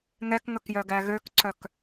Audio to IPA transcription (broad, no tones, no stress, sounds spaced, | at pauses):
ŋ ɛ k ŋ ɵ k j œ ɡ æ ɣ ø k ǀ œ k